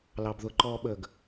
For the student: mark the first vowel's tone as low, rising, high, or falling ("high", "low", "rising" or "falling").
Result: low